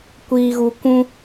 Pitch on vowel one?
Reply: low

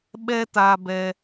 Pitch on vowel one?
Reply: high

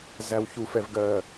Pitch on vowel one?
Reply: low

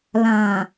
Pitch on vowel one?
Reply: low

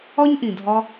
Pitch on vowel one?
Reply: high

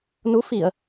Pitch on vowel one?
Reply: rising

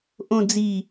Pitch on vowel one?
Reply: low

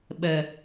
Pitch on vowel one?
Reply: low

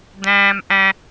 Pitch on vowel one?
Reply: low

